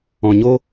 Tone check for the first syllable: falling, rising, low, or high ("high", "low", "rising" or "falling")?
low